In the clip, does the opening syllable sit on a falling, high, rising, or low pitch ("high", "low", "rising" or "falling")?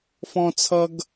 high